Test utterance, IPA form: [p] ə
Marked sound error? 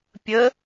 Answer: yes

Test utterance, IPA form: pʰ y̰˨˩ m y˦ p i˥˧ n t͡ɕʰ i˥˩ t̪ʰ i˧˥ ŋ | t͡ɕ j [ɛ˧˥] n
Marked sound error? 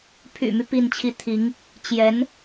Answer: no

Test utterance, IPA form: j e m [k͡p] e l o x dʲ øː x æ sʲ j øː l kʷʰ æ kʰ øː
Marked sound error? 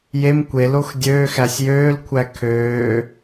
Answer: yes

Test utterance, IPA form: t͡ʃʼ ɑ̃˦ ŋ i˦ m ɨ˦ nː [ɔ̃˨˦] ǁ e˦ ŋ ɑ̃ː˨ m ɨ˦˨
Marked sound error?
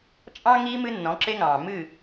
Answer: no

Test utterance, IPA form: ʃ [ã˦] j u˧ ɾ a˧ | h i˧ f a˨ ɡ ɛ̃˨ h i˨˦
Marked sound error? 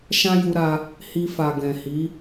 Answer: no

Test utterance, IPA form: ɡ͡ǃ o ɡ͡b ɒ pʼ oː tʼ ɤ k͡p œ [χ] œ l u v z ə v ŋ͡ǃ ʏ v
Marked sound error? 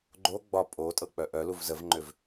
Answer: yes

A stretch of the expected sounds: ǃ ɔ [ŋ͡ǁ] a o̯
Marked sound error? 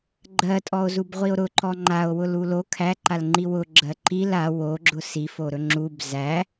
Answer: yes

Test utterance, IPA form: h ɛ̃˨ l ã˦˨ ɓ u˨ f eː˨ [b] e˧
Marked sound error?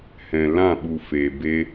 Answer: no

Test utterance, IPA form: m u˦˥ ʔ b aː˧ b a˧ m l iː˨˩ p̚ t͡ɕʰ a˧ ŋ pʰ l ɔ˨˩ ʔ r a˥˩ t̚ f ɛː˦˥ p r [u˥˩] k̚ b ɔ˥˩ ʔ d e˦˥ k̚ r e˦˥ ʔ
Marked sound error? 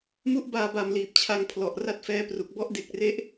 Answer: yes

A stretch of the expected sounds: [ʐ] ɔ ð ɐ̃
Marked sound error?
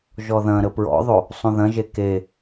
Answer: yes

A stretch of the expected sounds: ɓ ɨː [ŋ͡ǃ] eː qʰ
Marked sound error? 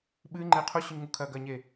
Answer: no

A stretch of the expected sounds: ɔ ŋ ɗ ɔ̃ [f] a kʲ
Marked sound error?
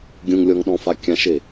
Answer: no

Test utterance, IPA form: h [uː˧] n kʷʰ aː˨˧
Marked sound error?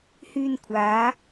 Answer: yes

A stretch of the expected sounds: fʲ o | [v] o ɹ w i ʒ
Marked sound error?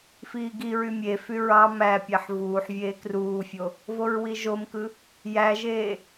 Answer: no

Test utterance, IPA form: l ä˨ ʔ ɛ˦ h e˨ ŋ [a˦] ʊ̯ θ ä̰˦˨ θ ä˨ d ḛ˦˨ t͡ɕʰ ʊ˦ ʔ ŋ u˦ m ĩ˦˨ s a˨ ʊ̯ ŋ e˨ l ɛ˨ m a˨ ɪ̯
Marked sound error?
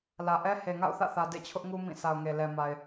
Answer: yes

